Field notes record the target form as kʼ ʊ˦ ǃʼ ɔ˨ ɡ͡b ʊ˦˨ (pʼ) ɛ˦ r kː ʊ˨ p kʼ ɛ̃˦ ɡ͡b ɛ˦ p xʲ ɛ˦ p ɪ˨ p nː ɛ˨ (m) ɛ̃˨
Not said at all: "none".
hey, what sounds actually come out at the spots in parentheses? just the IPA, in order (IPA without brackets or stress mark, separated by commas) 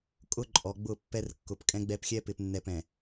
pː, p